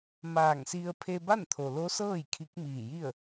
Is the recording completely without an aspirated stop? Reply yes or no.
no